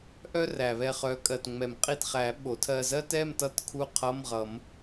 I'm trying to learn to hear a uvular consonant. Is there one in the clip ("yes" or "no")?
yes